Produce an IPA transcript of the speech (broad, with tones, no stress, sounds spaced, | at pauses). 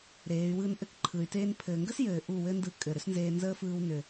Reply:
ɾ eː˨˦ y̯ w ɯː˦ n ʔ ɘ˦ k ǃʰ ɯ˨ y̯ t eː˦ n pʰ ɘː˨ ŋ ɡ ə˦ s j ɘː˨ ʔ u˦˨ w ɘ˦ n d ɯ˧ kʼ ɘ˨ ɾ ʏ˦ s n z eː˧ n z əː˦ f ɯː˧ w n ʏ˨